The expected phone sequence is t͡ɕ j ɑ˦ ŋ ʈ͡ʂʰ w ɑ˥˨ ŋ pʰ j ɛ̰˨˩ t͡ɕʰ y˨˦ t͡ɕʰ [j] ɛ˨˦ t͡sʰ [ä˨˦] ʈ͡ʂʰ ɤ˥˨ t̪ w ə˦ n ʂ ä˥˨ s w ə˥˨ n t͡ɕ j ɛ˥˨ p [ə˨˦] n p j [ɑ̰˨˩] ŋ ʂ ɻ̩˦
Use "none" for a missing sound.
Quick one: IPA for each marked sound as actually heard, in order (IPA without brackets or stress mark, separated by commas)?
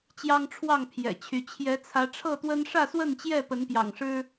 j, ä˨˦, ə˨˦, ɑ̰˨˩